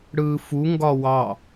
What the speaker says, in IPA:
ɽ ɯː f u ŋ ɡ ɒ w ɑ

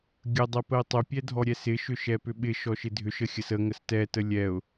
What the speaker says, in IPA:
ɡʲ ə dˤ ɛ p ə ɪ̯ tˤ ʏ pʲ ɛ dʱ ɔ ɾʲ ɛ s ɪ ʃ ʏ ʃ ɛ p ʏ ɓ ɪ ʃ ɔ ʃ ɪ dʱ ʏ ʃ ə xʲ ə s ə ŋ ə s t ɛ t ə lʲ ɛ ʊ̯

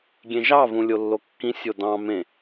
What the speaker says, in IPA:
ɡʲ ẽ ʒ ɑ v ũ lʲ o lː o kː ĩ sʲ o d ɑ̃ m ẽ

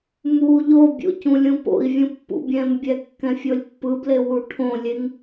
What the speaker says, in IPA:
m u ʎ o bʲ o̰ c ũ lʲ ũ p o̰ i̯ vʲ ũ pː ṵ bʲ ɛ̃ m bʲ ɛ kː ɛ̃ fʲ o lʲ pː ɯ b l e w u ʈʰ õ lʲ e ŋ

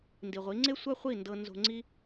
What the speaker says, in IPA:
n d i˨ ʁʷ i˨˦ ŋ͡ǀ e˦ sʷ a˦ χʷ i˦˨ n d ɤ˧ n z o̤˧ ŋ͡ǀ i˦

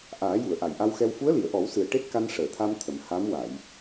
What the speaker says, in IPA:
ʔ aː˨˩˦ j u˨˩˨ ə̯ ʔ a˨˩˨ j ʔ a˧ w x ɛ˧ w f u˧˥ ə̯ l i˨˩˨ ə̯ ʔ ɔ˨˩˦ w s ɨ˨˩ ə̯ ʈ e˦˥ t̚ k a˧ n ʂ əː˨˩˨ t̪ʰ a˧ m t̪ʰ ə˨˩˨ m h a˧˥ m w a˨˩˨ j

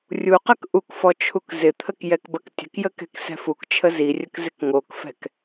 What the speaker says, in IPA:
rʲ u q ɐ k ʔ u k f ɔ t͡ʃʰ u k z ɪ t̪ʰ ə k j ɛ k b ɐ k tʲ ə̤ k j ə k ɛ̤ k s ɛ̤ f u k t͡ʃʰ ə z i rʲ ə k z ɪ k ŋ o k f ɛ̤ k

